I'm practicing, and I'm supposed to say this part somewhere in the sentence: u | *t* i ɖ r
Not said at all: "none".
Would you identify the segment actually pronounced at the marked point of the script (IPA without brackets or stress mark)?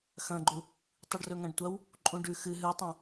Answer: tˤ